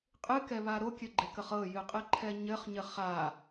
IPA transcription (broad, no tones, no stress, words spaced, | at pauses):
qʼɨkɛβa ɾokʲɘɡ͡ǃekəχ ɤjɨqʼɨǃʰɛ ɲɘχɲɘ χa